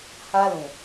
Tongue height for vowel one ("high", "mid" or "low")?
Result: low